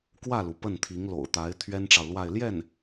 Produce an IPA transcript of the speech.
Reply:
kwä˥˩lu˩ pə˥˩nt̪ʰi˧˥ŋ lo̰˨˩ʊ̯t̪a˧˥ɪ̯ t̪ʰɥɛ˥nʈ͡ʂɑ˨ʊ̯lwa˥˧ɪ̯ ljɛ˥˩n

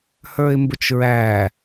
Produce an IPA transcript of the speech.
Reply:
hə˞ɪ̯mbʊt͡ʃɹæ

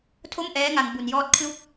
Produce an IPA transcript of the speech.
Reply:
tʰo˥˩mʔɛː˦˥ŋa˧ŋ bu˧njɔː˦˥t̚ kʰlu˥˩k̚

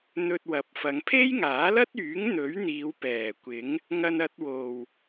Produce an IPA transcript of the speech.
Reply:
n̪ɵ˧t̚wɐ˨˥p̚fɐ˨˧ŋ pʰe˥jŋaː˨˥lɐ˥t̚yː˨˥ŋ n̪ɵ˨˥ɥn̪iː˨˧w pɛː˨˩kʷɪ˨˥ŋ | ŋɐ˧nɐ˧t̚wo˨w

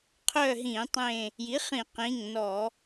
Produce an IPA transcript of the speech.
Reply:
qʰœ˦˨ɦĩ˧˩˧ tˤẽ˦˨ | ji˩˥χĩ˧˩˧qĩ˩˧˩ŋnɔ˧˩˧

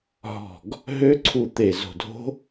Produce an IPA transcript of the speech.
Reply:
ɦɔ̤˧˩ɡ | ɦø˦˥ǀʰu˧˩t̪e˧˩ zo̤˧˩dʱo̤˦˥

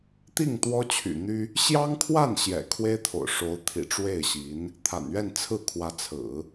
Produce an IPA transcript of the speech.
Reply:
t̪i˥˩ŋ t̪wɔ˥t͡ɕʰy̰˨˩n̪y˥ | ɕjɑ˥ŋkʰwa˥˩n ɕjɛ̰˨˩kʰwe˥ɪ̯t̪ʰo̰˨˩ʊ̯ʂo˧˥ʊ̯ t̪ʰḭ˨˩ʈ͡ʂwe˥˩ɪ̯ɕi˧˥n | t̪ʰa̰˨˩nɥɛ˥˧nt͡sʰɹ̩˥˩ kʰwä˧˥t͡sʰɹ̩˨˩˦

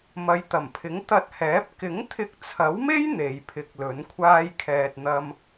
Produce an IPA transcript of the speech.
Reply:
mɐ˨˧jt̪ɐ˨˩mpʰɪ˨˥ŋ t̪ɐ˧t̚hɛː˨˥p̚ kɪ˨˥ŋt̪ʰɪ˧k̚t͡sʰɐ˨˥wme˥j n̪e˨˧jpʰɪ˧k̚ lɵ˨˥nkʷʰaː˥jkʰɛː˧t̚ n̪ɐ˥m

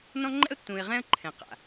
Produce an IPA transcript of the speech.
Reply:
nɔ̃˦ ŋ͡ǃɛ̰˦ʊ̯tːũ˨ɪ̯ ʁɛ̃˦ə̯ǃʰɛ̃˨ qa̰˨

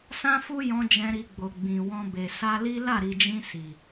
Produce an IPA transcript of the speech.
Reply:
sã˦fu˦jɔ̃˧ d͡ʒɛ̃˧ɾi˧ɡ͡bo˨ ɡ͡bĩ˨wɔ̃˧be˨ sa˧li˦ la˦˨ɾi˨d͡ʒĩ˧ si˨

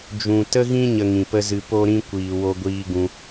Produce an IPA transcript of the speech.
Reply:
d͡ʒũ˨tə˦ɣĩ˦ ɲə˧ŋĩ˨pə˦zɨ˧ po˦ɾĩ˦ kʷiː˨wo˧ɡʷiː˧ ɡũ˧

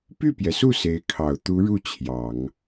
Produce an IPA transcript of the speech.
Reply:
py˥˩pjɛ˩su˥˩ se˧˥ɪ̯kʰɑ˨˩ʊ̯ t̪u˧˥ɻu˥˩ t͡ɕʰjɑ˨˩˦ŋ

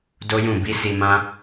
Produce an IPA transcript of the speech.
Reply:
do˦jũ˦˨ bi˨˦si˧ mã˦

